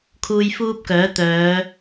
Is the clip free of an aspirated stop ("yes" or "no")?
no